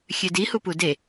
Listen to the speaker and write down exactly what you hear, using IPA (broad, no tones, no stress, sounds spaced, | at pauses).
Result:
xʲ ø d i h u p u d e